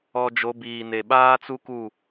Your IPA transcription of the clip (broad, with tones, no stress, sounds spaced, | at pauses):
ɔ˨ d͡ʒ o˨˦ b iː˨ n e˨ ɓ aː˦ t͡s u˦ k u˦˨